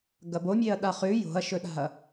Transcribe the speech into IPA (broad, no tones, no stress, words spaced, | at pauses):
ɡɐbomʲeɐ̯ ɗaχʉ jo̤ɐ̯ʃɵɗa̤ɐ̯